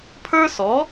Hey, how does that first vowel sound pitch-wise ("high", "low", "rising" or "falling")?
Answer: high